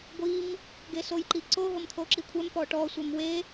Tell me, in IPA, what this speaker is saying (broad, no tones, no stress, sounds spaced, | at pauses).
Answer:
ɡʷ i m | ɡ e s o j ǃ i ǀ o ɦ o m t̪ʰ o ǁ i kʷʰ ɛ m p ɔ ʈ ɔ sʷ ɛ m w e